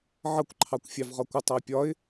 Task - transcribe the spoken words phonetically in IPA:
ʕ ʌ kʷ ǃʰ ɑ kʷ fʲ ɑ v ʁ ɒ kʷ ə tˤ ʌ ɪ̯ pʲ ɒ ɪ̯

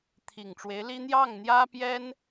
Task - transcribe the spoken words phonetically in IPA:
t̪ʰ i˨˩ ŋ ʈ͡ʂ w e˧˥ ɪ̯ l i˥ n̪ j ɑ˥˩ ŋ n̪ j ä˥ p j ɛ˥ n

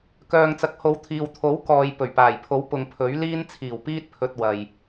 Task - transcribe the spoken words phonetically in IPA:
k œː˨ ŋ t͡s ɐ˨ k̚ h o˨˧ w t̪ʰ iː˨ w t̪ʰ o˨˥ w k ɔː˨ j p ɵ˨˩ ɥ p aː˨˩ j pʰ o˨˥ w p ʊ˨ ŋ pʰ ɵ˨˥ ɥ l iː˧ n t͡sʰ iː˨˩ w p iː˧ t̚ pʰ ɵ˨ t̚ w ɐ˨ j

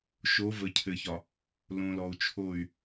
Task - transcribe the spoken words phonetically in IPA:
ʃ o˨˦ v ə˨ cʰ ɘ˨ ç ɒ˨ | l õ˨ l ɔ˨ u̯ t͡ʃʰ o˦˨ y̯

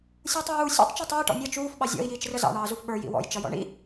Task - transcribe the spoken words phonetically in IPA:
sʲ uː tˤ j uː sʲ ṵ tˤ t͡ʃ i tˤ iː ʈ ɔ̰ nʲ ʌ t͡ʃ uː f ɓ ɑ zʲ ɔ̰ i̯ j iː t͡ʃ r ə z ɑ̰ ɳ ɑː z u f ɓ ə˞ j ḭ w ɔ̰ j t͡ʃ ʌ j ɔ̰ ɳ ḭ

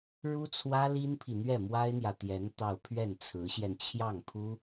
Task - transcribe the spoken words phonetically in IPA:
ɻ u˥ t͡sʰ w ä˥ l i˥ n pʰ i˨ n̪ ɥ ɛ˥˩ m w a˥ ɪ̯ n̪ j ä˨ t̪ j ɛ˧˥ n t̪ ɑ˥˧ ʊ̯ pʰ ɥ ɛ˥˩ n t͡sʰ ɹ̩˧˥ ɕ j ɛ˧ n t͡ɕʰ j ɑ˥˩ ŋ pʰ u˥

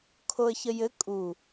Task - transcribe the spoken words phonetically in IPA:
kʰ o ə̯ ç ə j ɘ kʼ u

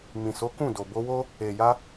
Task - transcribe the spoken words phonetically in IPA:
m ĩ˨ s o˨˦ k ũ˦˨ d o˨ b o˧ w o˦ | e˨ j a˧

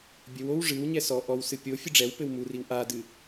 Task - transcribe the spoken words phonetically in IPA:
bʲ ɘ w o w ʐ ɨ w ɲ ɛ s ɔ ʔ ɔ w s ɨ pʲ o fʲ ɨ ɖ͡ʐ ɛ w p ɘ w m u r i w ʔ a d ɨ

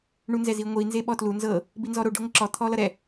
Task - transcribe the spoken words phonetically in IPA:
ɳ u n z ɛ z i ŋʷ i n z e ɓ ɔ t l u n z ɤ | b i n z ɔ ɾ o ɖ e ŋʷ ɪ ǁ ɔ t̪ʰ ɔ l ʌ ɾ ɛ

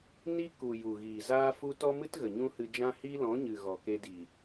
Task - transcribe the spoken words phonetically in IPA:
n i˦ k u˨ j u˨ ɣ iː˨ z aː˦ f u˦ t ɔ˦ m ɨ˦ t ɣ ə˨ ɲ ũ˦ h ɨ˧ d͡ʒ ã˦ h iː˦ l ɔ̃˨˦ ɲ ɨ˨ ɣ ɔ˨ k e˧ d i˨

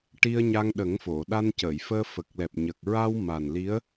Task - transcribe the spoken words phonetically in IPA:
ʈ i˧ ə̯ ɲ a˧ ŋ ɗ ə˨˩˦ ŋ f o˨˩˨ ɗ a˧ n c ə˨˩˨ j f əː˧ f ə˨˩ k̚ l ɛ˨˩ p̚ ɲ ə˨˩ k̚ ɹ a˧ w m a˨˩ n l i˧˥ ə̯

